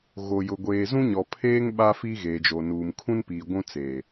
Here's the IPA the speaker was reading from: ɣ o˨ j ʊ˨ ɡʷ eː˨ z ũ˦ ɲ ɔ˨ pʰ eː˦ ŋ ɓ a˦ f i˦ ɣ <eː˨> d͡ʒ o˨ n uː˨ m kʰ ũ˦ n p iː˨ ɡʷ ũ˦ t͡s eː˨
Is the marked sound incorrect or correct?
correct